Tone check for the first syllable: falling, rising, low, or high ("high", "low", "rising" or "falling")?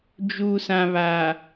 low